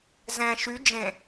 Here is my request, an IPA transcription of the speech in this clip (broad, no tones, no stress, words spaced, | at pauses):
zɛ̃ ʃy d͡ʒẽ